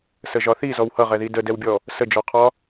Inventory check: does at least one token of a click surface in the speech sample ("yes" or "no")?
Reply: no